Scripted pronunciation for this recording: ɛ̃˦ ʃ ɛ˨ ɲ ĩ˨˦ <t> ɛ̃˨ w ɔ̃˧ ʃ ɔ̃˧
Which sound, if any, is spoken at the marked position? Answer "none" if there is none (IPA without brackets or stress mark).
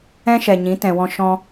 t